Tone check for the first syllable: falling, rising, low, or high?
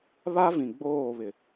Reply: high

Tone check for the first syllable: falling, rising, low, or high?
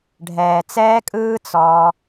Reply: low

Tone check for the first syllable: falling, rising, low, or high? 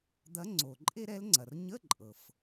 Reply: rising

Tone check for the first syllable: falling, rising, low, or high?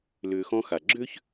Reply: low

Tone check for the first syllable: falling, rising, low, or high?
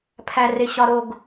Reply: low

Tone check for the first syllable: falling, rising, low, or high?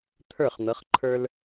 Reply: falling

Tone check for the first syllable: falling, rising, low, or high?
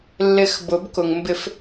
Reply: low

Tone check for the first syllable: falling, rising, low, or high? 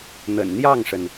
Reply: low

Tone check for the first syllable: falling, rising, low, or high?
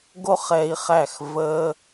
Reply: high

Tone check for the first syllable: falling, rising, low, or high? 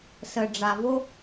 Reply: low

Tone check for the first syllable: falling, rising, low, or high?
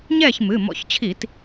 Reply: falling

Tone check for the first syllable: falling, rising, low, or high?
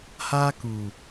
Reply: high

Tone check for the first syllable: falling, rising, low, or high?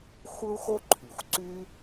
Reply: high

